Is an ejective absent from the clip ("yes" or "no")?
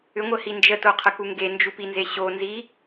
yes